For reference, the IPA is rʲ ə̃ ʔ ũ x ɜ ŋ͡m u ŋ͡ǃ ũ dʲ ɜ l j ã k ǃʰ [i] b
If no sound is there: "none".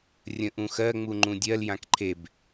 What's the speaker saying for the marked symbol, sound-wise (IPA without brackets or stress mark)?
e